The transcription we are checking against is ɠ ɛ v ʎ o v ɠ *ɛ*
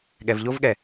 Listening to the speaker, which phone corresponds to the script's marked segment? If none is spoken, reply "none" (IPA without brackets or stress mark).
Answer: ɛ